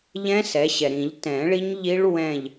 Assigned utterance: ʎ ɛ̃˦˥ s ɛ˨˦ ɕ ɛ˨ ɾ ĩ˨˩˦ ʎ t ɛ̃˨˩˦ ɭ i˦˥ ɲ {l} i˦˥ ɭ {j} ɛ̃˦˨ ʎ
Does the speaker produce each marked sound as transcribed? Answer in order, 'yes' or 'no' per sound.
no, no

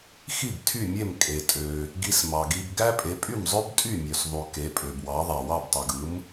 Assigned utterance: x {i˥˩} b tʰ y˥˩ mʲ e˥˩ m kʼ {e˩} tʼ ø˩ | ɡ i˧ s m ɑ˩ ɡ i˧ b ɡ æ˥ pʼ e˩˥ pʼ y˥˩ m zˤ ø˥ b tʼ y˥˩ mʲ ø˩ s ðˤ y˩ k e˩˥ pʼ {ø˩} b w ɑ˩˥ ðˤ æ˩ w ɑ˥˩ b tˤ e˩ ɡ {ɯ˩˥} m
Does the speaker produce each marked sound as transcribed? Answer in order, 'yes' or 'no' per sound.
yes, yes, yes, yes

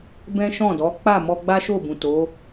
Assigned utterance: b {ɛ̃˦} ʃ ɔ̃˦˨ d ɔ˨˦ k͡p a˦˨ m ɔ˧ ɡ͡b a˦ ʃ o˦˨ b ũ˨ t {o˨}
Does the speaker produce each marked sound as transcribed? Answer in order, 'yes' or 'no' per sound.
yes, no

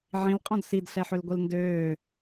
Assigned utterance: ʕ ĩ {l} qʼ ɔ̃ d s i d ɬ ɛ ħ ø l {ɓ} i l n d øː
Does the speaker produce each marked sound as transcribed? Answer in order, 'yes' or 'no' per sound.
yes, no

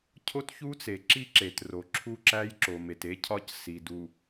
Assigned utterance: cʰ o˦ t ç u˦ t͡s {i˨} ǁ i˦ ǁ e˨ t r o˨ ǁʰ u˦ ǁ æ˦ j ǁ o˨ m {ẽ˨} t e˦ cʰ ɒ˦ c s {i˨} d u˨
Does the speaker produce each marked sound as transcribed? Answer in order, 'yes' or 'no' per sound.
no, no, yes

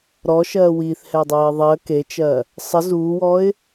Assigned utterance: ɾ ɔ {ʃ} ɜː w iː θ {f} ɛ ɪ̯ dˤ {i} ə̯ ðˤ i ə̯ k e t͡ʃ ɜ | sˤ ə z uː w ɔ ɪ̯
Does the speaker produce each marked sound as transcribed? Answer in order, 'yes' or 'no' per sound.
yes, no, no

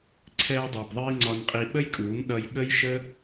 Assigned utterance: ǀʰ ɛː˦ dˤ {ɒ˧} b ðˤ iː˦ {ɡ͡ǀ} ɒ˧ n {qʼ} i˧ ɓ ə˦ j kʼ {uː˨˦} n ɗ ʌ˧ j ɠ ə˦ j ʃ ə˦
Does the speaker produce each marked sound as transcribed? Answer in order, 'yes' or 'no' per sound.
no, no, yes, yes

